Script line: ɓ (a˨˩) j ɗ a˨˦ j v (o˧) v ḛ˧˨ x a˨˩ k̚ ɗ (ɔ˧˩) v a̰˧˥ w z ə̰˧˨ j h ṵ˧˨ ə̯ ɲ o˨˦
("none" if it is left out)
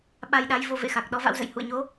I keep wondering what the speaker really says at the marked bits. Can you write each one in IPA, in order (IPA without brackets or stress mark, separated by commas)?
a˧, o˧, ɔ˨˦